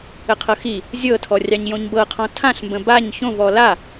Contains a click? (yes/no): no